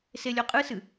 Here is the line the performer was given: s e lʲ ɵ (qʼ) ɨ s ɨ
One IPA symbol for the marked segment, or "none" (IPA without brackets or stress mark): qʼ